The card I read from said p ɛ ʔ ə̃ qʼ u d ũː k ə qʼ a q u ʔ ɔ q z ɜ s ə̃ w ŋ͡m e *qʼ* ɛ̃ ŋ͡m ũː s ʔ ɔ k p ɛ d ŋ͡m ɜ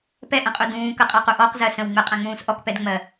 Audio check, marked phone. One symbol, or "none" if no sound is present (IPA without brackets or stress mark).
qʼ